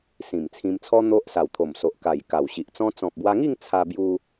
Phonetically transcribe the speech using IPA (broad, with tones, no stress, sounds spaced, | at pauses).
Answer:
s ĩ˨˩ m t͡sʰ ĩ˧ m t͡sʰ ɔ˦ n̪ o˦ ʔ s a˨˩ w t̪ʰ o˨˩ m s o˨ ʔ k a˨˩ j k a˨˩ w ɕ i˨ ʔ t͡s ɔ̃˦ t͡s ɔ̃˨ p̚ b w a˧ ŋ i˥˧ ŋ t͡sʰ a˧ b j u˧